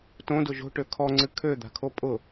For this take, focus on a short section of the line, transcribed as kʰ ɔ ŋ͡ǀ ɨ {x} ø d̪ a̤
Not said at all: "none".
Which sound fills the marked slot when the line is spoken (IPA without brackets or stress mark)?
kʰ